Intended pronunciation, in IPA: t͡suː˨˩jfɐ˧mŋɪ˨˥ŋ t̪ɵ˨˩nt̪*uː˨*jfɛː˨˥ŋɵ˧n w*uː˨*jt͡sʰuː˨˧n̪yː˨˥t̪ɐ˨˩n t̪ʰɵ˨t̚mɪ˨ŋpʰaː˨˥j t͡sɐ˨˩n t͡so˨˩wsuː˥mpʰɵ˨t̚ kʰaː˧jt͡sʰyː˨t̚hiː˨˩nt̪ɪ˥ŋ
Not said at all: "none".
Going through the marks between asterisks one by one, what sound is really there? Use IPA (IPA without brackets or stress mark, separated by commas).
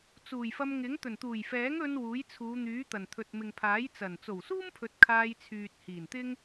uː˨˩, uː˨˥